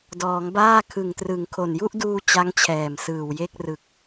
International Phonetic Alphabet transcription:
d ɔː˩˦ ŋ b aː˥˩ kʰ ɯ˨˩ ŋ t r ɯ˨˩ ŋ kʰ o˨˩ n j u˥˩ ʔ d uː˧ t͡ɕ a˦˥ ŋ t͡ɕʰ ɛː˨˩ m s ɯː˨˩ w j e˥˩ k̚ r ɯ˨˩ k̚

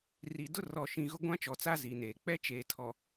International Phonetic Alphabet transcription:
r i˨ d ʊ˦ r ɔ˨ ʃ ĩ˨ ɣ ʊ˦ ɡʷ ã˦ t͡ʃ ɔ˨ t͡s a˦ z i˨ n eː˨ k͡p ɛ˦ t͡ʃ eː˨ tʰ ɔ˨

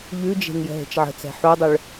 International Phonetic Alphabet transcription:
ʎ ʉ d͡ʒ e̤ ŋ j ə̤ ɦ e̤ t͡ʃ ʕ ə̤ t͡s ɛ̤ ħ u dˤ ʏ ɭ

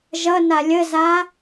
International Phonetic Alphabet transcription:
ʒ ʌ n a lʲ ə z a

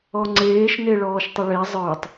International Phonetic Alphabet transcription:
ɔ ŋ͡ǀ eː ʃ n e ɭ ɔː ʃ tˤ ə ɭ e zˤ ə˞ tˤ

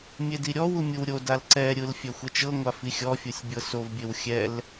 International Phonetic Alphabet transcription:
mʲ e d i ɾʲ ɔ w u mʲ ɯ w ɾʲ o d a l ǀ ɛ ɾʲ ɯ l fʲ ɛ xʷ ɛ t͡ʃ ɤ ŋʷ a f i xʲ ɔ fʲ u sʲ bʲ ɤ s o v bʲ e w xʲ ɛ l

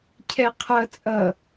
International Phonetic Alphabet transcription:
cʰ ɛ qʰ ʌ t͡sʼ ʌ

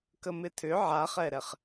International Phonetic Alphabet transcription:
k ə m ɪ tʰ ʏ ʕ a χ ɛ ɾ ɛ χ

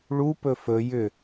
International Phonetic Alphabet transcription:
ɭ u p ɵ f ɵ j ʏ

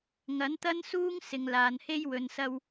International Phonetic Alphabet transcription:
ŋ ɐ˨˥ n t̪ ɐ˥ n s uː˥ ŋ s ɪ˨˧ ŋ l aː˨ n h e˥ j w ɵ˨ n s ɐ˧ w

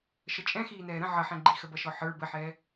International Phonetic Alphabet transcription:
ʃ ə t͡ʃʼ ɛ̃ x iː n ɛː ɾ ə̃ ʕ ʌ ħ ɛ̃ ɡ͡ǃ i x ə b ʌ ʃ ɔ ħ ə˞ b ə ħ ɛː

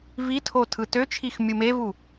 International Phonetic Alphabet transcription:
v i tʰ o tʰ ɯ t ø t͡ʃʰ i x mʲ u m e v u

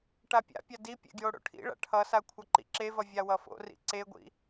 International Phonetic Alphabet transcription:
ʈ a pʲ a̰ pʲ a d i pʲ ḛ ɡ j o ɽ o̰ ʈʰ ḭ ɭ a̰ ʈʰ ʌ s a kʷʰ ʌ ǃ ḭ ǁ e v ʌ vʲ a w ʌ f o̰ r ḭ ǀ e ɡʷ ḭ

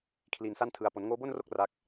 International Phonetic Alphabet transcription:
kʰ l i˧ n s a˥˩ n tʰ ɯ˧ a̯ p o˩˦ n ŋ oː˦˥ b o˥˩ n r o˥˩ k̚ r a˥˩ k̚

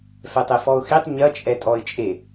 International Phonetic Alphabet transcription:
f ɛ tˤ e f ɔ ʊ̯ x i tˤ ɲ ɐ t͡ʃʼ ɛ tʼ ɔ ɪ̯ t͡ʃʼ e

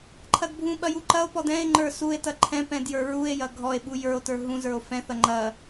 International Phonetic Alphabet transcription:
ǃʰ ɐ d bʱ ũ ɓ ɐ j u ǃ ɐ o̯ p ɔ d ɛ̃ e̯ ŋ͡ǃ ə˞ s u e̯ t ɐ ǃʰ ɛ̃ p ɛ̃ d j ə˞ ɹ u e̯ j ɐ ɡʱ ɔ e̯ ɓ u j ə˞ o̯ t ə˞ ɦ ũ z ə˞ o̯ f ɛ̃ θ ɐ ŋ͡ǃ ɐ

